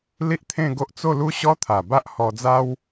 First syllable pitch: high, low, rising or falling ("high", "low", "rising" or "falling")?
high